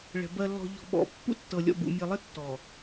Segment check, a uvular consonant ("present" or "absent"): absent